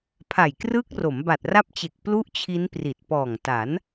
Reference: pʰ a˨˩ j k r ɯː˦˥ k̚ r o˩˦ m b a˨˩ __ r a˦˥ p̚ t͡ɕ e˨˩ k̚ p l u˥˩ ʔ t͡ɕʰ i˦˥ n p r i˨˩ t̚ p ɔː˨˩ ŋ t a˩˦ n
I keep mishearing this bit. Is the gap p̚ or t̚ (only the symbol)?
t̚